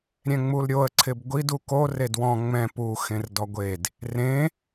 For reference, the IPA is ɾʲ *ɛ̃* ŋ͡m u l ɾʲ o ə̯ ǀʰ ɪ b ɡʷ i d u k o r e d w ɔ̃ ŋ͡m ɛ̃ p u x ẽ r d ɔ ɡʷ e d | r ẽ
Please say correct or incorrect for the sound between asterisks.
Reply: correct